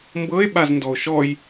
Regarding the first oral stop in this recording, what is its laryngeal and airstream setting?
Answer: plain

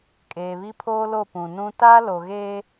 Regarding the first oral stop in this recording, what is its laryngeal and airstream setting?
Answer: ejective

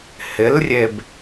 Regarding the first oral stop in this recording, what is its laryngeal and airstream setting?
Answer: plain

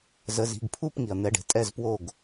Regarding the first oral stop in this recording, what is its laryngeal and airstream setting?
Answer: plain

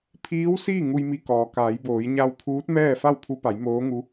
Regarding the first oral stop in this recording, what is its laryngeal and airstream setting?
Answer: aspirated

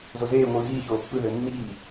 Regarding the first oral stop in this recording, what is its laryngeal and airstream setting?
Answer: plain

